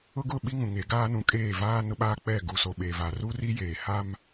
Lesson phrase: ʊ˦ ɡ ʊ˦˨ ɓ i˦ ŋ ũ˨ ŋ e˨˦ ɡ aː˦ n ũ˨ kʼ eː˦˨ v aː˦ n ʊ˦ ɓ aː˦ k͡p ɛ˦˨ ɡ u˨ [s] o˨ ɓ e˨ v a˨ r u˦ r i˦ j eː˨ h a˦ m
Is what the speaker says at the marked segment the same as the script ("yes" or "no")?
yes